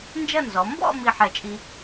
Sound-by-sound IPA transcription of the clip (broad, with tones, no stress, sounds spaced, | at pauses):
n d͡ʒ ɐ˥˧ n z ɔ˩˧ m b ɔ̰˥˧ m i˥˧ ħ ɛ˧˩ t͡ʃʼ i˧